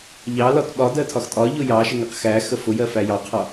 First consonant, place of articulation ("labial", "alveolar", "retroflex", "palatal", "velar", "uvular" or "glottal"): palatal